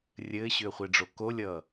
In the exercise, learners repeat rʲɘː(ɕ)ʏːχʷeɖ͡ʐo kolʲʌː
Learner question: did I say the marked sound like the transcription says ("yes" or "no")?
yes